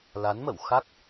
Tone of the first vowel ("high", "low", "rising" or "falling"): rising